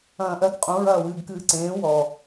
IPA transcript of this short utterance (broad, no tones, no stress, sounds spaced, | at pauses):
ɐ̃ː ʔ ɜ ɡ qʼ ũ ɹ ɐː w ɨː ɡ k ɨː ǀ ẽː w ɔ